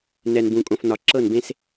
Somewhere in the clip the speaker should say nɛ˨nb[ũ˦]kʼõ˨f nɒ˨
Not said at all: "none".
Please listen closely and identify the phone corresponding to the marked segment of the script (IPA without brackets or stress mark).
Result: ũ˨